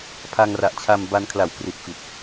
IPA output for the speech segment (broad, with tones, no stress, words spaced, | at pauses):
pʰa˧ŋra˨˩ʔt͡ɕʰa˧mba˧n kʰla˨˩wkri˨˩t̚fi˨˩t̚